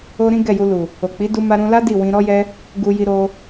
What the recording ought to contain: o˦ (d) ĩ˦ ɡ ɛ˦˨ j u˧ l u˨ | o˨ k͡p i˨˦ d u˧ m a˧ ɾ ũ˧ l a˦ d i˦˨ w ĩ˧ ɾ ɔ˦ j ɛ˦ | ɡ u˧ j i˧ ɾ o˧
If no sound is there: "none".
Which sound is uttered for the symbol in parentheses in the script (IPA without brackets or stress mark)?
ɾ